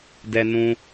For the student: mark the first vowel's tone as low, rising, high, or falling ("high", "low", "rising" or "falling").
high